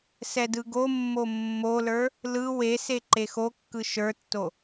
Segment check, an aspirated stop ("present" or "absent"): absent